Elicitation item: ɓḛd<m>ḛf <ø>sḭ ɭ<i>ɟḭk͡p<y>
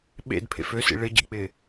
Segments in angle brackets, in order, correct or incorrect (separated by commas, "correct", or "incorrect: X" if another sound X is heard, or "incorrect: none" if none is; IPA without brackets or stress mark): incorrect: pʰ, correct, incorrect: ɪ, incorrect: ɪ